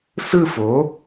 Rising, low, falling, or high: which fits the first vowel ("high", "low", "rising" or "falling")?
falling